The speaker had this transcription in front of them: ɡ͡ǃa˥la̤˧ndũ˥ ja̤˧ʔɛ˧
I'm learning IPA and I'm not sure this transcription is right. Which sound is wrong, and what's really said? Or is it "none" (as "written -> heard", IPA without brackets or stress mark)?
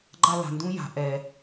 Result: none